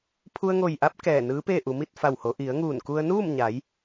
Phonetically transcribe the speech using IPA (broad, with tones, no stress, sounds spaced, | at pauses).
pʰ u˧ ə̯ ŋ o˧˩ j ʔ a˧˥ p̚ k ɛː˧˩ n ɯː˧˥ p eː˥˨ ʔ u˩˧ m i˥˨ t̚ f a˧˩ w h o˩˧ ʔ i˩˧ ə̯ ŋ uː˧˩ n k u˧ ə̯ n uː˥˨ m ɲ a˩˧ j